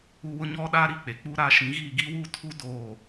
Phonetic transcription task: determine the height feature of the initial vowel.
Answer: high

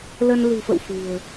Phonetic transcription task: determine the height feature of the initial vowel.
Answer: mid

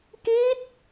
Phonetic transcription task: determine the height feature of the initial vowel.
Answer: high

